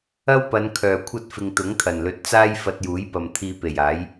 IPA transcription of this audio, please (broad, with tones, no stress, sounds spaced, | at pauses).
ɐ˥ w p ɐ˨˧ n kʰ œː˨ kʷʰ ɐ˥ t̚ f ɪ˧ ŋ t̪ ʊ˨˥ ŋ t̪ʰ ɐ˨˩ n l ɵ˨ t̚ t͡s aː˥ j f ɐ˧ t̚ j uː˨˥ j p ɐ˨ m t̪ʰ iː˧ p e˨˩ j aː˨˥ j